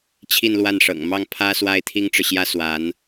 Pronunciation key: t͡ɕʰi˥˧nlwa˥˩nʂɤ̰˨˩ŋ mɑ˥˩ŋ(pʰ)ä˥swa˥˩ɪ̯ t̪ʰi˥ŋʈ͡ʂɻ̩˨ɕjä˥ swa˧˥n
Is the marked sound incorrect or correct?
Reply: correct